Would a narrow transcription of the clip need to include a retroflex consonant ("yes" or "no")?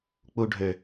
yes